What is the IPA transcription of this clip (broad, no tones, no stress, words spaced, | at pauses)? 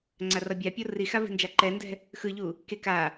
ŋ͡ǀarʌbʲapʲo rixa vi̤nd͡ʒaǃɛndɛ̤ | xɯʎu | ke ka